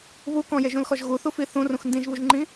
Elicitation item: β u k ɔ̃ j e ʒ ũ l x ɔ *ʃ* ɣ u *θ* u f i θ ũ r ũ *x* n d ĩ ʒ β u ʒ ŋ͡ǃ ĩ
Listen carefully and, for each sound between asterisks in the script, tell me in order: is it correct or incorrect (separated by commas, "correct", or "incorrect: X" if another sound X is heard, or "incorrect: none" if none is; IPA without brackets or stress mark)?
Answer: incorrect: ʒ, correct, correct